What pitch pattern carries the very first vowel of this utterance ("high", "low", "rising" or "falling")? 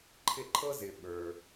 falling